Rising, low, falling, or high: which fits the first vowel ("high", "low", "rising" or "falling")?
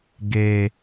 low